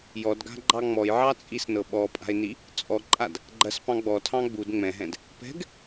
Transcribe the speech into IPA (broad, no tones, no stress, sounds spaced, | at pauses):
j ɔ d ɡ a̤ ɡ͡ǃ ɑ ŋ͡m ɔ j ʕ ɑ t͡sʼ i s n ɤ ɓ ɔ pʼ a̤ ɪ̯ n i | t͡sʼ ɔ ǃʼ a d | ɡ͡ǃ ɐ s p ɑ̃ ɡ͡b ɔ tʰ ɑ̃ ɡ͡b u d ŋ͡m ɛ̃ ɦ ɛ̃ d | p ɛ̤ ɡ